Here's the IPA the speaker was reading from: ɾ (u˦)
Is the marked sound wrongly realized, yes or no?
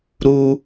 no